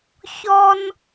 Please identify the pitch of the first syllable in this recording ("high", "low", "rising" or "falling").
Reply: high